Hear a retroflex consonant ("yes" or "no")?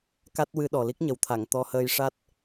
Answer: yes